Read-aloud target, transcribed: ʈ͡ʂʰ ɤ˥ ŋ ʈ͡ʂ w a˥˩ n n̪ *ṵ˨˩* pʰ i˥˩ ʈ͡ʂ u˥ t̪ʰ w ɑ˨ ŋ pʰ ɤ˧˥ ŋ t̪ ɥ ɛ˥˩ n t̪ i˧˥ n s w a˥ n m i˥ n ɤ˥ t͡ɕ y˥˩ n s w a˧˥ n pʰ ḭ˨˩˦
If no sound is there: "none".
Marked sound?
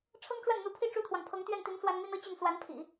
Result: u˧˥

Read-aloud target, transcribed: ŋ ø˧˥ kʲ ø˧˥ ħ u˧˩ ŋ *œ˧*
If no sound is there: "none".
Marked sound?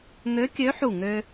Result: ø˧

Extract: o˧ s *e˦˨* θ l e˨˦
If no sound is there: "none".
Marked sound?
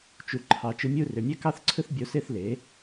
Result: e˦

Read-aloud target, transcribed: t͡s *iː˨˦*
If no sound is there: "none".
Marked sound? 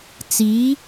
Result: iː˨˦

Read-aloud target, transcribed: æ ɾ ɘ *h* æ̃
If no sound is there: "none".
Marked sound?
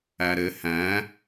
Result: h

